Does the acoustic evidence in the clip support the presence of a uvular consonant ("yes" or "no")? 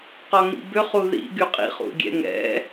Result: yes